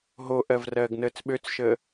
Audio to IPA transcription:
ɦoʔɜv rɜːɡnəːt͡sɓøt͡sʃəː

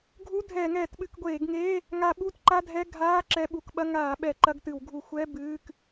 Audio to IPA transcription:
ɡʱu˧˥˧dʱɛː˧˩˧ŋɛː˧˩˧t ɓɨ˧˩˧kɡʷeː˧˩˧ɡŋeː˧˥˧ | ŋa˧˩˧ ɓu˧˥˧tǃa˧˥˧dʱɛ˧˥˧ ɡʱaː˧˥˧ ǁɛ˧˥˧ɓu˧˩˧k ɓɐ˧˥˧ ŋaː˧˩˧ɓɛ˧˩˧ ǃɐ˧˥˧ɡtɨ˧˩˧wɡʱu˧˩˧ xʷɛ˧˥˧ bɨː˧˥˧k

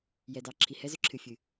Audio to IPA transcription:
jɛ˨dɑ˨ ǁʰi˨hɛ˦zʏ˦ ǁʰɨ˨fʲɨ˨

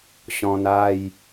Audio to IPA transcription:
ɕɔ̃˧na˥˧j

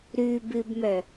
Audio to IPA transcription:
ɾʉbɨbmœ

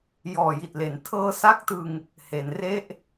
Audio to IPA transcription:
jɔː˨˩ji˨˩t̚le˩˦n tʰɤː˧sa˦˥k̚tɯ˧ŋ | he˩˦nre˥˩ʔ

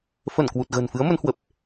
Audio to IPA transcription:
fə˧˩nkwu˨˩t̚ ɣə̤ː˨˩nfɨ˨˦ə̯ mə˨˦nhwə˨˩p̚

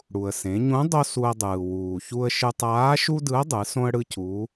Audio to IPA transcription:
ɽu˩ə̯sẽ˩˧ɲũ˧˥ dˤo˥ su˧ə̯dˤɯː˩ wuː˩çu˧ə̯ʃɯ˧ tˤaː˧˥ʃu˥dɯ˧˥ə̯dˤɯ˩˧ sõ˥ə̯ɽɯ˥cu˧˥

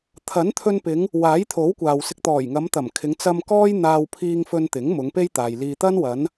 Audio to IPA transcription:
t̪ʰɐ˨˥nt̪ʰɵ˧npɪ˨˧ŋ | waː˨˥jt̪ʰo˨˥wkʷaː˨wsɪ˧k̚ t̪ɔː˨˩jŋɐ˨˧mt̪ɐ˨˩mkʰɪ˨˧ŋ t͡sɐ˧m kɔː˥j n̪aː˧wpʰiː˧ŋfɵ˧n t̪ɪ˨˥ŋ mʊ˨˧ŋpe˥jt̪aː˨j liː˧t̪ɐ˥n wɐ˨˧n

